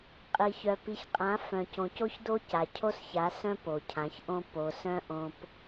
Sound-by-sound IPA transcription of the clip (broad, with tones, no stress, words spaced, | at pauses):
qʼi˨çœ˨ pi˨çqʼã˨˦ fœ̃˨cõ˨co˦çdo˦ ca˨ cʰo˦sça˨˦ sœ̃˦ po˨cʰã˨˦çʔõ˦ po˨sœ̃˦ ʔõ˦p